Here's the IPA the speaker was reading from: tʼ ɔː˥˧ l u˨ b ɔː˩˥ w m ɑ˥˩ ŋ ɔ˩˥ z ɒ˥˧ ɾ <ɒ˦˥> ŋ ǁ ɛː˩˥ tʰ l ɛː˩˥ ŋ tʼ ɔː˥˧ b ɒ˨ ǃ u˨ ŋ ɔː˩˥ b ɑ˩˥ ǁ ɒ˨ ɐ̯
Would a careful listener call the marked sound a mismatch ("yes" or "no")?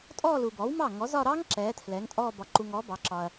yes